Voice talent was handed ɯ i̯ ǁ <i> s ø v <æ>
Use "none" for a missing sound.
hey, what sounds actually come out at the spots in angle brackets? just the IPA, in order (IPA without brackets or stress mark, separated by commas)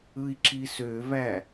i, æ